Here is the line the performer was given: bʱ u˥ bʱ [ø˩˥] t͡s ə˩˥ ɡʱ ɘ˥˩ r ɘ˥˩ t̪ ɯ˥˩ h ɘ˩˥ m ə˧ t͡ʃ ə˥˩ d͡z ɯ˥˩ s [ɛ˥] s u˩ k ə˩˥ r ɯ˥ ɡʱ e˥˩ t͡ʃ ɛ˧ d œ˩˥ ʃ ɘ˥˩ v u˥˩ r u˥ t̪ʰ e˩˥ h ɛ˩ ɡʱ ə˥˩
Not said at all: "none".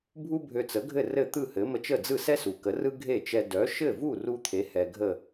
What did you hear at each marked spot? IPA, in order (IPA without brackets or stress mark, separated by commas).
ø˧, ɛ˥